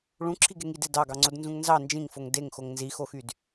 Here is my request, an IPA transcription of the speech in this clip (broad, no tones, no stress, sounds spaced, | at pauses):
ɭ ũ ǁʰ i ɡ e ŋ i d e d ɑ ɡ ɑ ŋ͡ǀ o d n z ũ ŋ n z ɑ n d͡ʒ ĩ ŋ f o ŋ d e ŋ x o ŋ n z i x o x y d